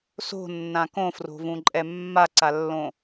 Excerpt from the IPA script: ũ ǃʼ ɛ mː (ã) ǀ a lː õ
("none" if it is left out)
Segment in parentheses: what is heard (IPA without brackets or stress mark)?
a